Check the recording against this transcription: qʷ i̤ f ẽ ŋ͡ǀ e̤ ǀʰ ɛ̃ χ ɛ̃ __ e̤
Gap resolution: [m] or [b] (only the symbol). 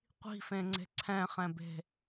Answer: b